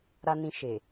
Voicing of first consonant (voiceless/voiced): voiced